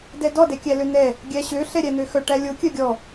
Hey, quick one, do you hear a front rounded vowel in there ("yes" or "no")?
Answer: yes